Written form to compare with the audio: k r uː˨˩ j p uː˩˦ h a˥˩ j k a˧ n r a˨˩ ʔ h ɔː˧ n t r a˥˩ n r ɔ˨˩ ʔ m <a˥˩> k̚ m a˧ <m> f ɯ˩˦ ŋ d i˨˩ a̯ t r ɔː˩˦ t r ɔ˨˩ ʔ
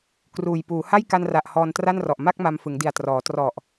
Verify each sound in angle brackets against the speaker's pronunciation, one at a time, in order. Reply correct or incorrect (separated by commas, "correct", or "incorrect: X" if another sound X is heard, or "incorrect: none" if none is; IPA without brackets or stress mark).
correct, correct